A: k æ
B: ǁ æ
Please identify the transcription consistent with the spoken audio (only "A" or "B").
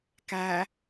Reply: A